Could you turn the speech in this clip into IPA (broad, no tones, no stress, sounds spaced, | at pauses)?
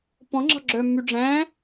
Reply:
p ɔ̃ ŋ͡ǁ ɑ̤ ɡ͡ǁ œ mː y ɖ͡ʐ æ̃